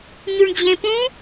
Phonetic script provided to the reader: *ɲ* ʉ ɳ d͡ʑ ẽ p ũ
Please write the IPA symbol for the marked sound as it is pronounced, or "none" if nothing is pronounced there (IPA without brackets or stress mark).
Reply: ɲ